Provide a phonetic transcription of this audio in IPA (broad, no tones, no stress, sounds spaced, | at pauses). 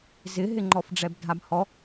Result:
z ɪ ɦ ɪ ŋ͡ǃ ɔ f ɖ͡ʐ ɛ b dʱ a b h ɔ